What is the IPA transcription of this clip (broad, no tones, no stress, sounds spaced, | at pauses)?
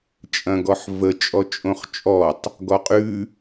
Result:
t͡ʃʼ ɐ̃ ɡ ɔ ħ v ə t͡ʃʼ ɔ t͡ʃʼ õ χ t͡ʃʼ ɔ tˤ | ɡ ɔ qʼ ʉ